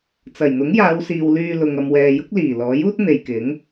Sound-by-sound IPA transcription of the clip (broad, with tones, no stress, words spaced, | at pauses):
t͡sɐ˨˩jn̪ʊ˨˥ŋjaː˨˧wsiː˨w lyː˧lʊ˨ŋ ɐ˧mwɛː˨jʊ˥k̚ liː˨˩lɔː˨˥juː˥t̚ n̪e˨jkɪ˨˥ŋ